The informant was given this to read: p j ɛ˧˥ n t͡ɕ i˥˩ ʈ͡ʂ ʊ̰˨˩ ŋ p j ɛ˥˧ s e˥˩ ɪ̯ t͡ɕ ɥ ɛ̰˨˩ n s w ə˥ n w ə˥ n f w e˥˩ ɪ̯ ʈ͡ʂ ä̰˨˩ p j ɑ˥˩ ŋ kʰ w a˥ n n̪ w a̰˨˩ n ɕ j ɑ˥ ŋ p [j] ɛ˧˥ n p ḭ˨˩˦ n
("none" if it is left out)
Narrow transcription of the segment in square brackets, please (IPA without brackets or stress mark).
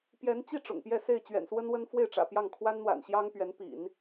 ɥ